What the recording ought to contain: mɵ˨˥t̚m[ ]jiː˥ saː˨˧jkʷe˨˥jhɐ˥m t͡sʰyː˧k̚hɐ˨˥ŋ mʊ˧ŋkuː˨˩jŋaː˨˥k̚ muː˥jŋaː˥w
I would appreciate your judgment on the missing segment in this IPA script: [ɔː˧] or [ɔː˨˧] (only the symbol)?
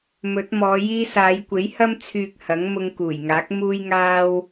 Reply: ɔː˨˧